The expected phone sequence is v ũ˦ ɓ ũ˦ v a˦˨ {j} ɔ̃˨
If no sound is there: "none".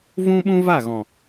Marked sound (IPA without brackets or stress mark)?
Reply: ɣ